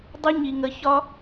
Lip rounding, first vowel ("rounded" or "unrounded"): rounded